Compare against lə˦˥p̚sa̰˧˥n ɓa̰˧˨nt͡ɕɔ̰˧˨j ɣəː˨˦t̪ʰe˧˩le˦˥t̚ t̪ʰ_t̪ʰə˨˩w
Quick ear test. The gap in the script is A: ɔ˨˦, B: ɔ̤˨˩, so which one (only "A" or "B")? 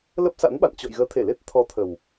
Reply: A